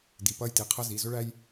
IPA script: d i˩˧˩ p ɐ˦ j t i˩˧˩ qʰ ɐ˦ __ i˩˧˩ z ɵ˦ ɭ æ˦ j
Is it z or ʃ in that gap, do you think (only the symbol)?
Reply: z